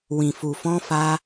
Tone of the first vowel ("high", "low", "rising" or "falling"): low